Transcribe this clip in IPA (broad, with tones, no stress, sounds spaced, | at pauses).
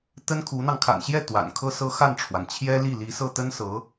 t̪ ə˥ n kʰ u˧˥ n̪ ɑ˧ ŋ kʰ a̰˨˩ n ɕ j ɛ˥˩ t̪ w a̰˨˩ n kʰ ɤ˥ s ɤ˥ x a˥˩ n ʈ͡ʂʰ w a˩ n t͡ɕʰ j ɛ˥ l i˥˩ l i˧˥ s ɤ˥˩ t̪ ə˥ n s ɤ˧˥